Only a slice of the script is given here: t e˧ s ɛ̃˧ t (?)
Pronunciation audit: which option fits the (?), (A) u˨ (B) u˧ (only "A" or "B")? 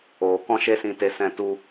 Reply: B